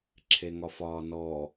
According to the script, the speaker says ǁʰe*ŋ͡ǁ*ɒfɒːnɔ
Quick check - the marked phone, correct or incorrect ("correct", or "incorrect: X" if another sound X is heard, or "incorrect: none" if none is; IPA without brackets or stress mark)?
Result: incorrect: ŋ